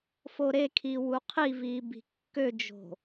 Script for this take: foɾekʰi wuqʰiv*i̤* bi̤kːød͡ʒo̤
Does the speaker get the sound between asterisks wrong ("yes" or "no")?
yes